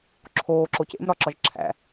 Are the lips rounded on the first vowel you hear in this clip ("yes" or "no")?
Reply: yes